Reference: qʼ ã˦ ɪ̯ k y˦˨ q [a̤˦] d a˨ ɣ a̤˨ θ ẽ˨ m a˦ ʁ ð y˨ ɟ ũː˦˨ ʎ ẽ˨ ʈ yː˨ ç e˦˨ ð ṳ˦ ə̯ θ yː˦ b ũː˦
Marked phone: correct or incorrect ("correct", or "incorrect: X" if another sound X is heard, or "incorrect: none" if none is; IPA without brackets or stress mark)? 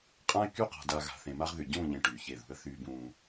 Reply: incorrect: a̤˨